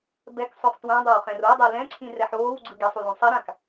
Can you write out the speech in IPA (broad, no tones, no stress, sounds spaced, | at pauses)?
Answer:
b ɛ k sˤ o χ t w ã dˤ a w χ ɛ̃ r o dˤ e l ɛ̃ ǀʰ ĩ r ɛ ħ oː w ɡ͡ǀ ɯ ɡ ɛ sˤ u l õ sˤ i ɾ ã k